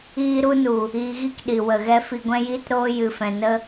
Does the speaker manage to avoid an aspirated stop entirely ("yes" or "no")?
yes